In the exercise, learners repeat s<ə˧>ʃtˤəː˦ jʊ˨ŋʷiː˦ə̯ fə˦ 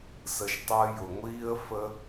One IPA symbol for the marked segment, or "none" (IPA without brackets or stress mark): ə˧